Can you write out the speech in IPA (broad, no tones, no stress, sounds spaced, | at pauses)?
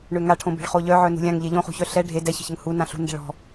ɳ ø ŋ a ʈʰ õ b e̤ ɭ χ o ʎ œ ʕ œ n ṳ lʲ ã ŋ ʎ e ʎ õ χ ṳ ç œ ɬ ɛ ɖʱ e d ɛ ç ə̤ ç ə ŋ h u n ã ɬ ṳ n d ɛ̤ ɭ ɔ̤